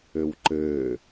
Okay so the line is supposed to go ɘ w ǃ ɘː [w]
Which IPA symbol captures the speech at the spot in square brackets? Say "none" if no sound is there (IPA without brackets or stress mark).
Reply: none